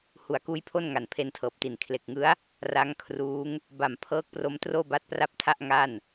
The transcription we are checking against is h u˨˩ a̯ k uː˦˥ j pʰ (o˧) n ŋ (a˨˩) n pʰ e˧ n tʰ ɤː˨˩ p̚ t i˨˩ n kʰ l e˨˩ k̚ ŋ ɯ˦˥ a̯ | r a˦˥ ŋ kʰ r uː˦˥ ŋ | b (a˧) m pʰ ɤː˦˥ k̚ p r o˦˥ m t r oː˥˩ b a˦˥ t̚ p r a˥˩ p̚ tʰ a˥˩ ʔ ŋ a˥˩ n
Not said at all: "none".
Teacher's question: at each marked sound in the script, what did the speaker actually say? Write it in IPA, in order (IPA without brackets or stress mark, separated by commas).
o˥˩, a˨˩, a˨˩